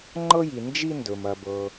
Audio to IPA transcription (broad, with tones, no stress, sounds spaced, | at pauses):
ŋ͡ǃ ɤ˥ j i˩ n d͡ʒ i˦ n d ɵ˩ m ɐ˩ b ɤ˩